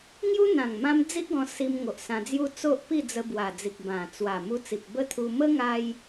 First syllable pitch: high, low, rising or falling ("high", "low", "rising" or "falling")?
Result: high